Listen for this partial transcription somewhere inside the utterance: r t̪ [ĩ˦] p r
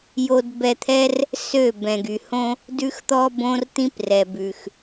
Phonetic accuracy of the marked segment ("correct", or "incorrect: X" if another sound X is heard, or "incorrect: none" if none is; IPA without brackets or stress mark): correct